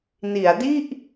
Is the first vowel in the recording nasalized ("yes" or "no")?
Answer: no